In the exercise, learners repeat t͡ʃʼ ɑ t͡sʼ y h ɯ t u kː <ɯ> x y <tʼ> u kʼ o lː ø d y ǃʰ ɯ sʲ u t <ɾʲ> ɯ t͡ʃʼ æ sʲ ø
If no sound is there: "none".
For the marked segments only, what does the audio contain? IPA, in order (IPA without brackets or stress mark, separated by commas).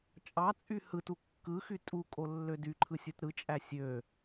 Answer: ɯ, tʼ, ɾ